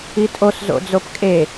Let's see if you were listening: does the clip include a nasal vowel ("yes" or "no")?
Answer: no